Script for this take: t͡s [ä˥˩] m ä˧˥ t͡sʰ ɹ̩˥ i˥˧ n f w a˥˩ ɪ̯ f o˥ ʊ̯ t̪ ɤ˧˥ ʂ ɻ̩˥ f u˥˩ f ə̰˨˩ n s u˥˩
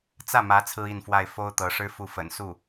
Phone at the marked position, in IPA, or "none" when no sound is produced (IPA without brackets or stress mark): ä˥˩